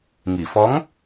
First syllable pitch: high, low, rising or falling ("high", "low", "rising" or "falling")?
low